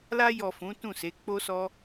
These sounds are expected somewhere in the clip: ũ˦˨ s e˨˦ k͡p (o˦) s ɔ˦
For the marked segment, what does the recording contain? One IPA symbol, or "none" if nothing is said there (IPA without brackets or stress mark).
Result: o˦